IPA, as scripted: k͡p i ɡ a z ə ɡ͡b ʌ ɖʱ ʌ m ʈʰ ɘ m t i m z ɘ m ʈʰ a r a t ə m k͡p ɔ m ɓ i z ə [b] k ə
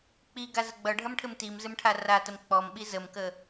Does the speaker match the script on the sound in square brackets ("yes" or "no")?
no